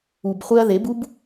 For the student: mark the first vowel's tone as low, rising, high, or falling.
low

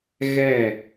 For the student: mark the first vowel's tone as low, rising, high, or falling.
falling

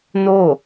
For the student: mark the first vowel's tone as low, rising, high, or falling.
falling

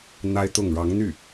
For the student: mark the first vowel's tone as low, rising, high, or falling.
high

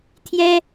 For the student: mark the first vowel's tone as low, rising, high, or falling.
high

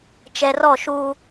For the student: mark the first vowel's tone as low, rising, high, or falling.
low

